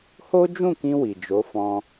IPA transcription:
ho˦d͡ʒũ˦˨kĩ˧ wi˨d͡ʒo˨˦fɔ̃˧

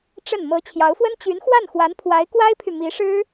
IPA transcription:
ʈ͡ʂə˥˩n mɤ˧˥ t͡ɕʰjɑ˧˥ʊ̯fwə˥n t͡ɕy˧˥nxwa˥˩n xwa˧˥npʰwa˧˥ɪ̯kwa˥ɪ̯pʰy˨ mi˧˥ʂɻ̩˥

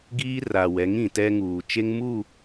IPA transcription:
ɡiː˦ra˨wɛ˨˦ŋ ĩ˨tɛ˦ŋuː˨ t͡ʃe˦ŋmu˦˨

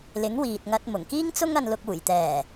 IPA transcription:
lɪ˨˥ŋwiː˨t̚ŋɐ˧t̚ mʊ˨˩ŋ kiː˥ŋt͡sʊ˥ŋ ɐ˧nlʊ˧k̚ uː˨˩jt̪ɛː˨˩

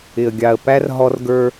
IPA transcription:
ɪ˨ə̯ɡʲɑ˨ə̯ pæ˦r ɦɔ˦rɡə˞˦

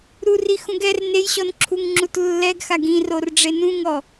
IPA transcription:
ɾurixũɡ ɛr nejɕɔnǁʰuŋ ŋ͡ǁutlːɛɡxaɡ ĩror ɖ͡ʐenũŋɔ

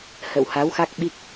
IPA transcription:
hə̰˧˨wha˨˦wxa˦˥k̚ ɓi˦˥k̚

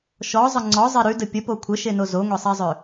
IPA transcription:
ʃɔzˤə ŋ͡ǀɔzˤe ɾʉdə pʲəpo kʷʰəʃeno zoŋʷɛsˤɛzˤø

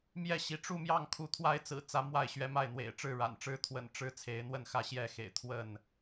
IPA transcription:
mjɛ˥˨ɕi˨˦ ʈ͡ʂu˥˨mjɑ˥˨ŋ kʰu˨˦t̪ʰwa˦ɪ̯t͡sɹ̩˨˩t͡sä˨˦ mwa˥˨ɪ̯ɕɥɛ˦ma˥˨ɪ̯n̪wḛ˨˩ɪ̯ ʈ͡ʂɻ̩˥˨ɻa̰˨˩nʈ͡ʂɻ̩˦ t̪ʰwə̰˨˩nʈ͡ʂɻ̩˦ t͡sʰe˨˦ɪ̯n̪wə˥˨nxä˥˨ ɕjɛ˥˨xḛ˨˩ɪ̯ t̪ʰwə˥˨n

